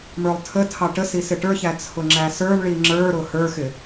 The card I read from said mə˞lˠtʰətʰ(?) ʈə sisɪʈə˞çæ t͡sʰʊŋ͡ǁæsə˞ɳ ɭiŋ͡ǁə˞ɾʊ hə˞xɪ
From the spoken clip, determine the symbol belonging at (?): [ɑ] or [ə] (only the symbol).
ɑ